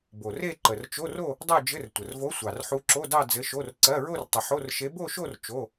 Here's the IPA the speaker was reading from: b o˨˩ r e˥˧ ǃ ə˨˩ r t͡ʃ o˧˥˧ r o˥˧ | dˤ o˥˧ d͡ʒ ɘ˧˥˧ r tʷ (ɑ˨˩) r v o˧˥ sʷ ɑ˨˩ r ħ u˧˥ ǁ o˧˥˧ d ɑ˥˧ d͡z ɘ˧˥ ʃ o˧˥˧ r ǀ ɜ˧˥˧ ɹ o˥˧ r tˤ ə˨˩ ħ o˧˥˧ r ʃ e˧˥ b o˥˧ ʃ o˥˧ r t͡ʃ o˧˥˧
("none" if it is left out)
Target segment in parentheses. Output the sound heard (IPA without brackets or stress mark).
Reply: ə˨˩